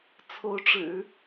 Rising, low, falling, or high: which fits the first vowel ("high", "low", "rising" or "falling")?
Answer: rising